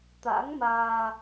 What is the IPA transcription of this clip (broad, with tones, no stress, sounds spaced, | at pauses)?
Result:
t̪ a̰˧˥ ŋ m aː˧